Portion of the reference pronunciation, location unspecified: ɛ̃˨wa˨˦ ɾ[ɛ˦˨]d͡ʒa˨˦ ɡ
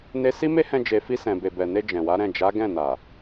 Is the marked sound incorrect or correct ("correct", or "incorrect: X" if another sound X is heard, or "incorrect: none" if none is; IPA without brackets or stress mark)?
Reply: incorrect: ɛ̃˦˨